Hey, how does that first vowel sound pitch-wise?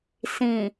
low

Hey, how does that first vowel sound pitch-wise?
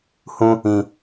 high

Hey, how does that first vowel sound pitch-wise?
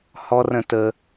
high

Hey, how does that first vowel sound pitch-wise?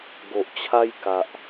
low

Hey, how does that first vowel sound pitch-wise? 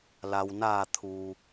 low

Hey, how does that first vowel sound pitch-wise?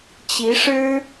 rising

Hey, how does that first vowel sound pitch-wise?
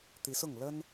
rising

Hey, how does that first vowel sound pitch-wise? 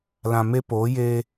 low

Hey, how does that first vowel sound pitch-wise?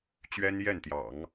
high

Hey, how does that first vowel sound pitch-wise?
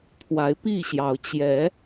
rising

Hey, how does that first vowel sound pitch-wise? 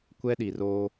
high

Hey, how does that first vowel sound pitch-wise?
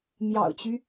low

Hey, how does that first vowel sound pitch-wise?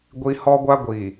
high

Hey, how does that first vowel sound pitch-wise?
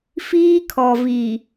high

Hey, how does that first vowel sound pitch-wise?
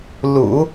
low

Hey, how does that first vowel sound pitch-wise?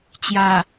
low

